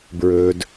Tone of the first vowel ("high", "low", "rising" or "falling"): low